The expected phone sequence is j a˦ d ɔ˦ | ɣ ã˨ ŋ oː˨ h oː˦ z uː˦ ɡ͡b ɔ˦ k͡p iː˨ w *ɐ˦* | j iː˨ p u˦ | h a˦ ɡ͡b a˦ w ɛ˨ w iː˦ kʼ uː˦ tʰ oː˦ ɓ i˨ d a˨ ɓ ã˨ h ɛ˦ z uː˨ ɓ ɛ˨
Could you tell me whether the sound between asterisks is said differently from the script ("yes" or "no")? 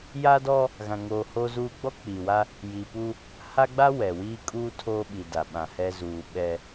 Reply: yes